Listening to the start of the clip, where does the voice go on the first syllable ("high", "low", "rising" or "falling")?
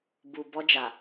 low